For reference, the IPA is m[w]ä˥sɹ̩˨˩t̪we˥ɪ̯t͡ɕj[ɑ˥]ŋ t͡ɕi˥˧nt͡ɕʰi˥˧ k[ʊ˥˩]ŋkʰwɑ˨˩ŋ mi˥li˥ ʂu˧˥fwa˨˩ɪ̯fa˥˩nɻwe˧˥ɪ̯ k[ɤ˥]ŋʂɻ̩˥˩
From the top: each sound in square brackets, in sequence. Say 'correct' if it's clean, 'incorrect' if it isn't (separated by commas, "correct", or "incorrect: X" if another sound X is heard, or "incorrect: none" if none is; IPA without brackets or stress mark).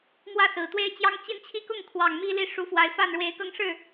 correct, correct, correct, incorrect: ɤ˥˧